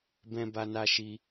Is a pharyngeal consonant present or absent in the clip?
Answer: absent